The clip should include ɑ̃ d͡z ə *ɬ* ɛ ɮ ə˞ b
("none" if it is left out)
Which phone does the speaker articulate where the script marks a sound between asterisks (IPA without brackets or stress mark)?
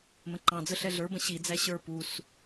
ɬ